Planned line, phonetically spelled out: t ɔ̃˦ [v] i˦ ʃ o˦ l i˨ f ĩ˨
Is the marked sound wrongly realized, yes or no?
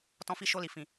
yes